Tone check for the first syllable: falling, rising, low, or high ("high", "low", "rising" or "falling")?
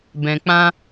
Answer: low